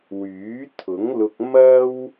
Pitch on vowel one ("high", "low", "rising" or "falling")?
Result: rising